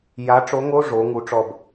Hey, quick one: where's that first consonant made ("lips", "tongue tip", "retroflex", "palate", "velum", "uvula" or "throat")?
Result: palate